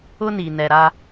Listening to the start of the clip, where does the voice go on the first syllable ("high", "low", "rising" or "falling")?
high